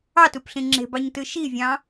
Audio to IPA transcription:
ɑtupɬĩ ŋ͡ǁe̤bɑɲtɯ ʃivʲɑ̃

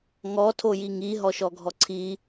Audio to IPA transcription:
ŋɔ tʰojiŋi ɦɔʃɔɡʱɔǀʰi

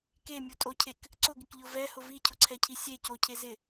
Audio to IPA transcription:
kemʲutʼocʰek | ǀʊɡɪkʎʊ vɛhʊ vicʰʊǀʰɛcʰi sʲe cocʰe zɪ

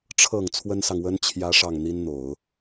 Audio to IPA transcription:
ʈ͡ʂʰɤ˨˩ŋ t͡sʰwə˥nsɑ˨ŋwə˥n t͡ɕʰjä˥ʂɑ˥˩ŋ n̪i˥nn̪o˨˩˦ʊ̯

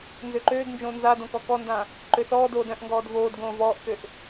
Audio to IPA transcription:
nzøǃøːdnd͡ʒõː nzad õkɔkɔndã | ǃøsɔːdoːd œ̃ʔŋɡɔːd voːd ɡõːvɔːʔkøʔ

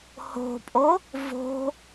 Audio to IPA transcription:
ho̤pʼo | vo̤

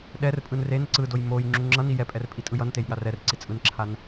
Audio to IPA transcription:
ɗɛrpʼɯn ren ǀɯdoj moj ŋ͡ǁuŋ͡ǁʌni jɛpʼɛr pʼitʼɯjʌntej ɠarɛrǀi t͡sʼɯnǁʰan

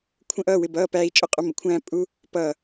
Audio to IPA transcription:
kʷʰə̃ː˥ʔʌː˧˥˧wɪ˧˥˧bʌː˧˥˧ pæː˥i̯t͡ʃʼʊ˥qʼʊ˥ mə˩˥kʷʰæ̃ː˥ pʼu˥ | pʌː˧˩

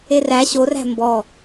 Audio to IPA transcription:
eræ ɕoræ̤ mbɔ

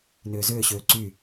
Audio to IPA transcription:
nʏːzʏːɕøː ǀy

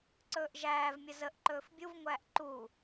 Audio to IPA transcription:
ǀɵːʔʒæːvmʲə zəʔ ǃɵːfbʲuvŋʷæːʔ ǃu

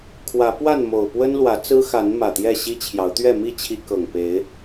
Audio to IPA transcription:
kʰwä˨˦pwa˥˨n mo˨˩ʊ̯ pwə˦nlwä˨˦t͡sɹ̩˦xa˨˦n mä˨˩t̪jɛ˥˨ɕi˦t͡ɕʰjɑ˨˦ʊ̯ t̪ɥɛ˥˨ mi˥˨t͡ɕʰi˨˦ kɤ˨˩ŋpe˨˦ɪ̯

